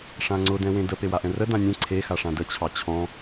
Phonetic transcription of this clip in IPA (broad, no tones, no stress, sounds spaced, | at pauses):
ʂ ã ŋ͡ǀ ʊ d ɛ̃ w ẽ d ə p e w a ʔ ɛ̃ r ə d ã nʲ ɛ̃ ǀʰ e x a ʂ ã d ə t͡ɕʰ ɑ t͡ɕʰ ɔ̃